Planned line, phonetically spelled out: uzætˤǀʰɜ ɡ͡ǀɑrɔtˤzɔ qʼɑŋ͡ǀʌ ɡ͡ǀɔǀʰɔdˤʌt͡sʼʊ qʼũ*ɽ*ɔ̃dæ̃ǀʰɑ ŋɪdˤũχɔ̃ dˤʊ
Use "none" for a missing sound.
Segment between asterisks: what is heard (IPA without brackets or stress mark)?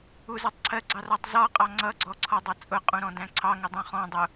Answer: ɾ